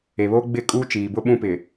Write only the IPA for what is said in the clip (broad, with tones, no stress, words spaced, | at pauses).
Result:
e˨βoː˦ɡ͡bɪ˦˨ kʼuː˦t͡ʃiː˨bʊ˦ ɓũ˦pɪ˨